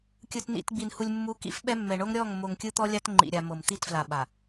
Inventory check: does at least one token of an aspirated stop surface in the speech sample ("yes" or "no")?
no